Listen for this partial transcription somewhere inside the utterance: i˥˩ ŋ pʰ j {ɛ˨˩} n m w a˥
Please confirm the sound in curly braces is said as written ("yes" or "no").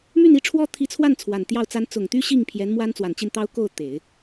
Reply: no